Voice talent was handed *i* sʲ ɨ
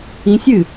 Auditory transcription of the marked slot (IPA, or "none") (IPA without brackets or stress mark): ĩ